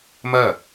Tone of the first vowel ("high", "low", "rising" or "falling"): falling